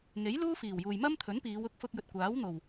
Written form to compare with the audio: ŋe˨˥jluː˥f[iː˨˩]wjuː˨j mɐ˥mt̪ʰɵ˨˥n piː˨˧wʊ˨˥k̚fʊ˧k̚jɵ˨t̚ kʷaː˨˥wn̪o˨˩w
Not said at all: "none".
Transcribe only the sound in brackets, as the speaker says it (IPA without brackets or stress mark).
iː˨˩